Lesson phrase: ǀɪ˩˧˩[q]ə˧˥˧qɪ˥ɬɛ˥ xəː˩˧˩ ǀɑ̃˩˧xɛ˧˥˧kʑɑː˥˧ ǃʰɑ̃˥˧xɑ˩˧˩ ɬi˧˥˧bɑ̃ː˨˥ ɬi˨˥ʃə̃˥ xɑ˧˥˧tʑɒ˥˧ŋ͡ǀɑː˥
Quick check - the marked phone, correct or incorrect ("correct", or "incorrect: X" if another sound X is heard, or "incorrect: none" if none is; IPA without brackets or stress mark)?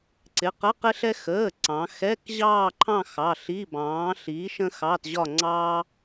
correct